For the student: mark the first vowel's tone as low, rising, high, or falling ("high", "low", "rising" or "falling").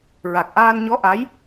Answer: low